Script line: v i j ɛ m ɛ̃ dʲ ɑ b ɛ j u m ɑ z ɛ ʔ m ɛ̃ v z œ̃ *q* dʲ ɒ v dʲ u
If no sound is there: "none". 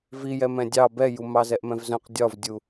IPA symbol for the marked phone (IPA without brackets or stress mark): q